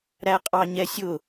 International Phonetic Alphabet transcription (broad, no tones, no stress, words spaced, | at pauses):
ɾæqʼɑɲɛsʲʊ